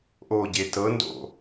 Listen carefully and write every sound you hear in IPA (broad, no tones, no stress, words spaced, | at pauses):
ʔoɟe tɤndo̰